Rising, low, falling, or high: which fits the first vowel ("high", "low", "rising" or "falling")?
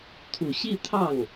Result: low